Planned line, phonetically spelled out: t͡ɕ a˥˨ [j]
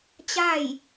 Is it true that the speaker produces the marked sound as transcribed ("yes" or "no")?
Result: yes